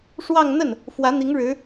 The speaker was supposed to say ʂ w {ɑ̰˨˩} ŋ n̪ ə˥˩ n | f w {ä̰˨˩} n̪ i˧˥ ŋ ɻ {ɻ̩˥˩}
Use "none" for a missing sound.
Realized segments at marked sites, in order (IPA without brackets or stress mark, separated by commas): ɑ˥˧, ä˧˥, ɻ̩˧˥